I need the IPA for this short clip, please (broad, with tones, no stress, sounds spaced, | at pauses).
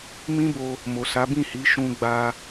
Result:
m ĩ˦ b o˧ | m o˨ s a˨˦ b ĩ˦˨ h i˨˦ ʃ ũ˧ ɡ͡b a˧